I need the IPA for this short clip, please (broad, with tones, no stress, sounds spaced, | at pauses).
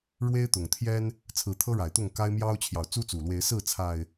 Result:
ɻ w e˦ ɪ̯ t̪ ʊ˨˩ ŋ t̪ʰ j ɛ˦ n | t͡sʰ ɹ̩˨˦ t̪ʰ ɤ˦ ɻ a˨˩ ɪ̯ t̪ ʊ˥˨ ŋ k a˦ ɪ̯ m j ɑ˦ ʊ̯ t͡ɕʰ j ɑ˨ ʊ̯ t͡s u˦ t͡s u˨˩ l w e˨˦ ɪ̯ s ɹ̩˥˨ t͡sʰ a˨˩ ɪ̯